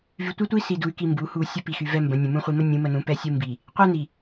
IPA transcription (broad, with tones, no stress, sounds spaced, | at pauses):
v y˨ tʷ ɛ˦ tʷ i˦ s i˨ d u˨ y̯ k i˨ m b u˨˦ h u˨ sʲ ə˦ p i˨ x y˨ v ɛ˦ m b ə̃˨˦ nʲ ə̃˨ m ũ˦ χʷ i˨ m ə˦ nʲ ũ˨˦ m ə˨ n ũ˨˦ p ɛ˦ sʲ u˦ m b i˨ | qʷ ɛ˦ n i˨